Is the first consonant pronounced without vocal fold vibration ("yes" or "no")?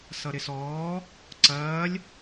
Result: yes